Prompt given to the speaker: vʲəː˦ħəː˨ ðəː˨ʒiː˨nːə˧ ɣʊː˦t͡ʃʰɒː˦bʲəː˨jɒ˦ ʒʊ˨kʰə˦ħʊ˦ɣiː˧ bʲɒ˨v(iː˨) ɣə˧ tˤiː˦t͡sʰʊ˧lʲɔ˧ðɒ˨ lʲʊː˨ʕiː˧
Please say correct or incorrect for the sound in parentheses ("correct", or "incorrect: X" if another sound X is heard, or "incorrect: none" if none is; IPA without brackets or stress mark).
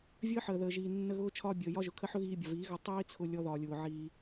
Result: incorrect: iː˨˦